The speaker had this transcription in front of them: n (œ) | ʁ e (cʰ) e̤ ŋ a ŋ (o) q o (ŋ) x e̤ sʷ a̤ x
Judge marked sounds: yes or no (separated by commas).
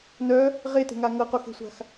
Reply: yes, no, no, no